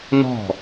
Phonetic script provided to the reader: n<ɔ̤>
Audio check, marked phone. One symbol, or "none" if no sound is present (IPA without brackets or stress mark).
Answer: ɔ̤